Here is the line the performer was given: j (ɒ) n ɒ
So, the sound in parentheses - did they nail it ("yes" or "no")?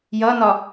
no